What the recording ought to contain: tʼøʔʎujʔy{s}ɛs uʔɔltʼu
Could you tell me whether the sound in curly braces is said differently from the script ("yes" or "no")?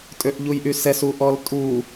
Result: no